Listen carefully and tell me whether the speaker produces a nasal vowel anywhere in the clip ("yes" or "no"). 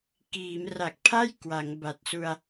no